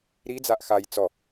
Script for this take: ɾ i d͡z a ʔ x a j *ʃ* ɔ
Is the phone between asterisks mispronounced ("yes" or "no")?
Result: yes